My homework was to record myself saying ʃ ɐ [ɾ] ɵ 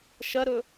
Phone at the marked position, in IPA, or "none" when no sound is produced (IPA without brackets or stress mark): ɾ